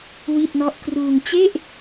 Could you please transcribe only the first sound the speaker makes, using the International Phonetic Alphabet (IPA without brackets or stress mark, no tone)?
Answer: w